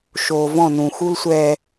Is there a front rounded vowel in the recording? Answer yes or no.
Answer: no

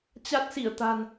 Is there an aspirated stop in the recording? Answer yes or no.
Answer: no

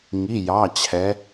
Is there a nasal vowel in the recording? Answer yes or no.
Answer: no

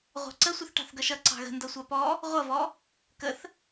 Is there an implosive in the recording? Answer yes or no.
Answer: no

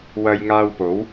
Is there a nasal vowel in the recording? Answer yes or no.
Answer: no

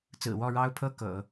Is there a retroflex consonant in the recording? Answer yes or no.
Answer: yes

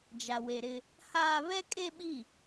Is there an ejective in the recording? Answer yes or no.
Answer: yes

